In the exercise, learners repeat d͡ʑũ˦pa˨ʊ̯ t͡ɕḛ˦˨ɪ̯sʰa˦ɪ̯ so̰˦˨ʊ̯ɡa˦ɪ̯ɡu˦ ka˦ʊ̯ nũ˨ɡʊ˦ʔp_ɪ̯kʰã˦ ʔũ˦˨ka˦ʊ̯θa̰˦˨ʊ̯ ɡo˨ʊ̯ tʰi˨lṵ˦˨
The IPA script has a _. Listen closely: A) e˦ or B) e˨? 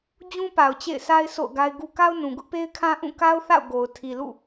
A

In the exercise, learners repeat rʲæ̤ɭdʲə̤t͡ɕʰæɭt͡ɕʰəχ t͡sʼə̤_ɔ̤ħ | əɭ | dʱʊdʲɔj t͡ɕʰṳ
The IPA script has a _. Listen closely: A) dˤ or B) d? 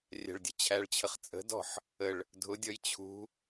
B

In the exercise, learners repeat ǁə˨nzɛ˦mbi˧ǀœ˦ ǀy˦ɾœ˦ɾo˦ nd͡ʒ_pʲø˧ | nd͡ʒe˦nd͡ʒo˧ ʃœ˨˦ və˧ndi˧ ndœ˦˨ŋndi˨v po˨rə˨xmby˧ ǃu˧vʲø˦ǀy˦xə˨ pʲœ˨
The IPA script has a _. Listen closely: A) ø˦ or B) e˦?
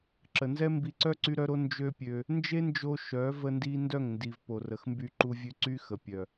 A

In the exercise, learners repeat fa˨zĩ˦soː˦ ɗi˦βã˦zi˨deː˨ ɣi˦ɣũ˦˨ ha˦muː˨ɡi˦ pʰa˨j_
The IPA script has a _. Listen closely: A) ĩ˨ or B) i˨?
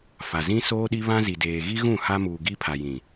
A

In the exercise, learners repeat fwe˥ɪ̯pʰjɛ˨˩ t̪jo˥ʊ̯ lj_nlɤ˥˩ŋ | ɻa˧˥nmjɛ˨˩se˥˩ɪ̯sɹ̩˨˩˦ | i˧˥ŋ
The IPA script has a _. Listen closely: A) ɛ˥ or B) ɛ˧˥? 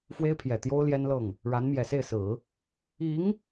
A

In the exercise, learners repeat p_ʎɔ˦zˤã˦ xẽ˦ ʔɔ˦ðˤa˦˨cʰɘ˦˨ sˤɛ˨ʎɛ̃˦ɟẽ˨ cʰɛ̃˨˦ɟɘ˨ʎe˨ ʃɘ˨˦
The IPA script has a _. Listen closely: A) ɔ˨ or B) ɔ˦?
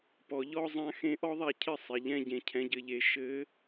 A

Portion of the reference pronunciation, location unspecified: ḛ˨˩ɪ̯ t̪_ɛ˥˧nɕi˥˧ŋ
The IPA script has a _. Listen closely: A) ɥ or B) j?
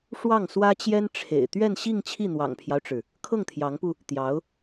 A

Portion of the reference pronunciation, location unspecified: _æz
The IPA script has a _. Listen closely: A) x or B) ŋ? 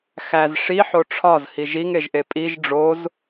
A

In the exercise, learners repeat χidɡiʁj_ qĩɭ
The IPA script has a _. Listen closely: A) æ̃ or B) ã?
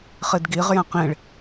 A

